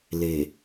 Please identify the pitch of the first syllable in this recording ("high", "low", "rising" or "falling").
low